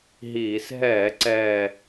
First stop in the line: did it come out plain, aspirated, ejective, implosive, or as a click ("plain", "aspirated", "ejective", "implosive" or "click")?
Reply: click